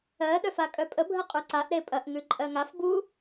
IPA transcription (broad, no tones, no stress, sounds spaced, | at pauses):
ɜ ɗ œ f a kʼ œ pʼ ə bʱ ə qʼ ʉ ǀ a ʔ ɾ e pʼ ɐ ʔ ŋ ʉ ǃʼ ɜ ŋ a f b u